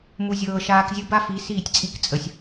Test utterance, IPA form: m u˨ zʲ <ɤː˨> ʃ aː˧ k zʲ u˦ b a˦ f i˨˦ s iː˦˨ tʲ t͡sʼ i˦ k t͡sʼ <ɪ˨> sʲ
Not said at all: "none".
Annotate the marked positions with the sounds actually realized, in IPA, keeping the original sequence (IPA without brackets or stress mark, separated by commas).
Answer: ɤː˨, ə˨